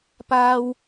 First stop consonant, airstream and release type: plain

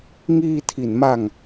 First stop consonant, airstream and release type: aspirated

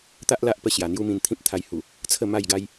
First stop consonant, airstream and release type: plain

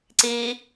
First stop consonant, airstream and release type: click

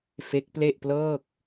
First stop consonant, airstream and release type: plain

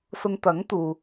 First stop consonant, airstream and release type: plain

